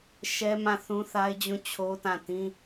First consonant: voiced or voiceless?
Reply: voiceless